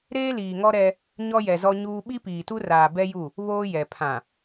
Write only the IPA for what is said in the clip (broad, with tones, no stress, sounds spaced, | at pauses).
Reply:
ɾ eː˦ l iː˨ ŋ ɔ˦ ɾ ɛ˦ | ɲ ɔ˦ j ɛ˨ z ɔ˦ ɲ uː˦ ɓ i˦ p iː˨ t u˦ r aː˨ b ɛ˦ j u˦˨ | β oː˦ j ɛ˨ pʰ ã˨